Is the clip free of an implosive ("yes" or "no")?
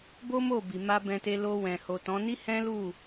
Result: yes